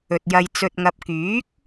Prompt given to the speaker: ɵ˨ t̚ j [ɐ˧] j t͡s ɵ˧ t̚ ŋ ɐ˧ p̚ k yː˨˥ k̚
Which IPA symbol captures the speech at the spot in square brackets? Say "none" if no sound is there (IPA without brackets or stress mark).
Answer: ɐ˧